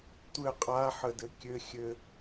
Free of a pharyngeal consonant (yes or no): no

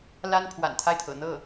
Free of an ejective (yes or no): yes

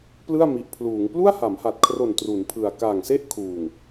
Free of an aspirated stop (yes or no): no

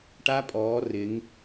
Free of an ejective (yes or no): no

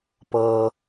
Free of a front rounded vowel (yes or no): yes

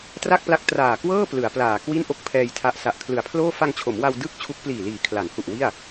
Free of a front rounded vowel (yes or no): yes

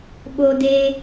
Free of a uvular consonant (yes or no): yes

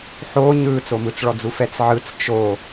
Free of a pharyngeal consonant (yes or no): no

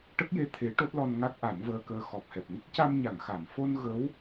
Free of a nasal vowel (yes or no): yes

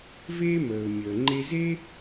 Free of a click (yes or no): no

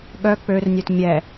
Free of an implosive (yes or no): no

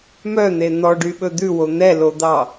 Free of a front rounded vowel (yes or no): no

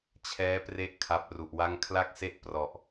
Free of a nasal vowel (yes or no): yes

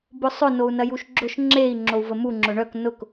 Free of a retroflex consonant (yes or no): no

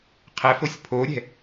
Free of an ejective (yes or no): yes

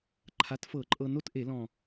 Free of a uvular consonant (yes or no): yes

